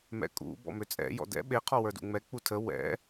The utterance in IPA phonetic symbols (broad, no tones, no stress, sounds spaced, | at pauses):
m ɛ̰ kʼ ṵ b ɔ̰ m ø t͡sʼ ɛ̰ j ɔ̰ d ɛ̰ ɓ e qʰ ɔ w ə˞ d ṵ ŋ͡m ɛ k͡p u tʰ ə w ɛ̰